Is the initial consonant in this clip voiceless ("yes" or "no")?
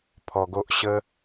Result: yes